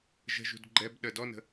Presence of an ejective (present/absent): absent